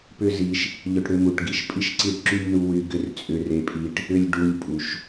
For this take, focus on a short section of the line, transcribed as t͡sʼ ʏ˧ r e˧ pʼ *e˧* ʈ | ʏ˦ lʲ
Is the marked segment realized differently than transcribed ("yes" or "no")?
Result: yes